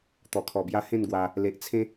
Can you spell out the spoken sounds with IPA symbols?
t̪ɔ˨˩kʰɔ˨˩bja˧ hẽ˥˧nɡwa˧ | le˨ʔ t͡sʰẽ˦

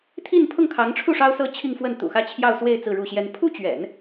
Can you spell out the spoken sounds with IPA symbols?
t̪ʰi˥˧npʰʊ˥˩ŋkʰɑ˧˥ŋʈ͡ʂʰu˥˩ ʂɑ˥ʊ̯sɤ˥t͡ɕʰi˥˧ŋfwə˥˩n t̪ṵ˨˩xä˥˧t͡ɕʰjɑ˥˧ʊ̯swe˥˧ɪ̯ t͡sɹ̩˥˧ɻu˥˩ɕjɛ˥n pʰu˥t͡ɕɥɛ̰˨˩˦n

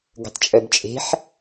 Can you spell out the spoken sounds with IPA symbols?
ɡə̤tˤt͡ʃʼœbt͡ʃʼe̤ħ

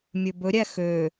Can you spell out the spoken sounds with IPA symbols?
mʲɵbɵɾʲæ xøː

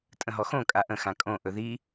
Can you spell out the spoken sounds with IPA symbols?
tʼə̃ɦɔxõ kʼaʔə̃ xãkʼõ ʔɵði

